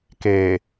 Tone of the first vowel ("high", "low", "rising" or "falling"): low